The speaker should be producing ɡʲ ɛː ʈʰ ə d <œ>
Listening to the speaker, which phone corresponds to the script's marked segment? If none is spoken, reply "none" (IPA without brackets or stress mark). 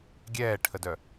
œ